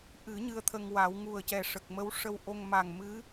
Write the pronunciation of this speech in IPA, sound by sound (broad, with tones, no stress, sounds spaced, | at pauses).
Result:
ʔ ɨ˨˩˦ ɲ ɨ˧ ə̯ t̪ʰ ə˧ ŋ w a˨˩˦ w ŋ u˨˩ ə̯ c ɛ˨˩ ʂ ə˨˩ k̚ m ə˧˥ w ʂ ə˧ w ʔ o˧ ŋ m a˨˩ ŋ m ɨ˧˥